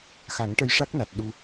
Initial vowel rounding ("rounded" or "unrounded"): unrounded